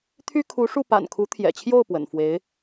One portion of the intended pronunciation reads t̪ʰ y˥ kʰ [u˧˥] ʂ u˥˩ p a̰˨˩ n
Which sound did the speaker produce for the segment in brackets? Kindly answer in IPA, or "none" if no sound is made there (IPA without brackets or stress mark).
u˧˥